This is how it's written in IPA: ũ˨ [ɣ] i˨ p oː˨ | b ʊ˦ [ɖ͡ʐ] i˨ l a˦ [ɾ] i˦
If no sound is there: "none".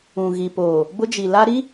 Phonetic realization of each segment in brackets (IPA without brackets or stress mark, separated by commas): ɣ, d͡ʒ, ɾ